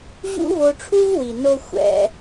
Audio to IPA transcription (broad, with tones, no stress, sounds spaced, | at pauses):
ʑ ṵ˦ v o˧ ʈ͡ʂʰ u˦ v w i˨ n o˧ xʷ ɛ̰˧